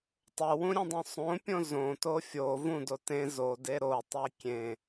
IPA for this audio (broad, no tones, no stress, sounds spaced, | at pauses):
tˤ o w ũ ɾʲ ẽ dˤ õ sˤ õ pʲ õ z õ t o fʲ o v ũ d o t ẽ z o d e ɾ o tˤ e kʲ ẽ